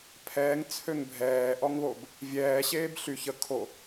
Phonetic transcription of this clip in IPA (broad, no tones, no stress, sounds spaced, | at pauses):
pʰ ɛː ŋ t͡sʰ ø ŋ bʱ ɛː ʔ ɔ ŋ β o b | vʲ ɛː ɕ eː b ɬ y ç ə kʰ o